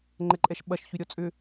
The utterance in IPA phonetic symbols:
ŋ͡ǃɛǃʼɛʃɓɐʃ çyɾʲɔt͡sʼʏ

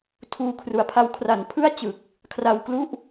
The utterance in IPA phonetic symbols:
tʰuː˧kʰru˨˩a̯pʰa˦˥w kʰra˨˩npʰɯ˥˩a̯t͡ɕɯ˨˩k̚ | kʰra˧wklu˥˩ʔ

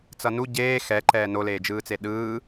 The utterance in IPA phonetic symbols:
t͡sʌnu ɟeː xɛǃɛː noleːd͡ʒɯːt͡se ɗɯː

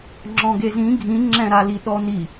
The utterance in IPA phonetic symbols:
ŋ͡ǁɔ̃ɡezĩ ɡʱĩŋ͡ǁɛ̃ɾali ɗɔni

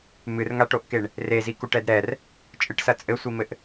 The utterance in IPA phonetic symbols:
mɨrŋaʈoʔkeɳ | rezikuʈɛd ɾɛr | t͡ʃʼɨʈsɐ t͡sʼɘsʷimɘʔ

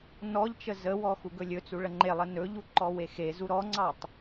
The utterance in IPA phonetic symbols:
nɔʎt͡ʃə zəwɔ xuɡɵlʲɵt͡su ɭəŋ͡ǃelˠə nɵʎu ǃɔwexezu ɾɔŋ͡ǀɑtˤ

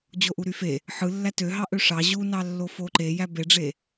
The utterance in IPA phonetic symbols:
d͡ʑoʔuɾyfe | ħɯ lːætøɦɑʔø ʂɑ ʑunɑ lːofoǃejæ beɖ͡ʐe

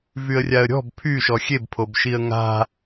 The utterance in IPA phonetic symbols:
vyə̯rʲaə̯ɾʲɔ̤b pʰyʃɔ xʲebpʰob ʃiə̯ŋa̤

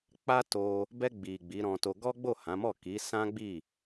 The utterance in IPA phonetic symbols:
k͡pa˦ to˧ | bɛ˧ɡ͡bi˨ ɡ͡bi˨˦ɾɔ̃˧to˧ ɡɔ˦ɡ͡bo˦˨hã˨˦mɔ˦˨ ki˨˦sã˦ɡ͡bi˦˨

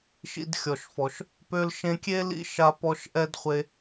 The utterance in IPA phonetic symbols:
ʃḭ˧dxʲɔ˨ʃfɔ˨ʃ | pø˧lʃẽ˧kʲe˦lḭ˧ ʃa˧pɔ˧ʃʔɛ˦dχʷe˧

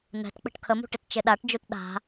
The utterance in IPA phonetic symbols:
n̪ɛ̤tk͡pə̤ʈ kʰəmṳ ʈɪtt͡ʃɪɗaʈd͡ʒut ɗa̤

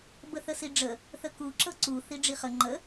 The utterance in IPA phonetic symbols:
bəθəsiɖ͡ʐə | θəku ǁɤǀu θiɖ͡ʐiχə ŋ͡ǃə

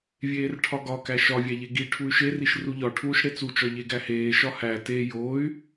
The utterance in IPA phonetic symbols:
vʲeːrʈʰɒɡɒkæ ʃɒvʲæʎe ɡi ʈʰuy̯ʃe riʃruʎɒ ʈʰuːʃɽet͡sut͡ʃɒ ʎeɡæheː ʃɒhæ te joy̯

